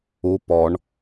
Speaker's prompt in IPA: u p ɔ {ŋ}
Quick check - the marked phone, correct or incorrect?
incorrect